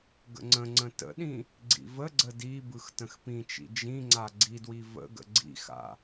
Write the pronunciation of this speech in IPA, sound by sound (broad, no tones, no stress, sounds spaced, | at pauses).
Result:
ɡ ə̰ ŋ͡ǀ ə̃ ŋ͡ǀ ə̃ t ə̰ ɗ ĩ | ɡ͡ǀ ḭ v ə ɡ͡ǀ ə d i b ɯ x t ə̃ x p ĩ t͡ʃ ḭ d͡ʒ ĩ ŋ͡ǀ a ɡ͡ǀ i d w i v ə̰ ɡ ə̰ ɡ͡ǀ ḭ x a̰